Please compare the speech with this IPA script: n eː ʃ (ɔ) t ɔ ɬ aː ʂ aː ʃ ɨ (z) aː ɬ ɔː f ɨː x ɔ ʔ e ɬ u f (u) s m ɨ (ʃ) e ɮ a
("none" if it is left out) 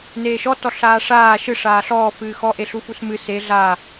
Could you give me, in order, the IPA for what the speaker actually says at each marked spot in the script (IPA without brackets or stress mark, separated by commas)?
ɔ, ʂ, u, s